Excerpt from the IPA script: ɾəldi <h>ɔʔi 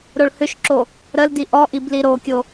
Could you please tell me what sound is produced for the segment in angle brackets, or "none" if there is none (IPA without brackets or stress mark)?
ʔ